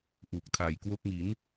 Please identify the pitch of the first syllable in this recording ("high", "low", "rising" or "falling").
low